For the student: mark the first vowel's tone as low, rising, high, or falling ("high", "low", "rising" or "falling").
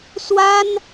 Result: high